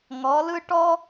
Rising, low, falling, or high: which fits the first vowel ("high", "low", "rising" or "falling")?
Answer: rising